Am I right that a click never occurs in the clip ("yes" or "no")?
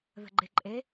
no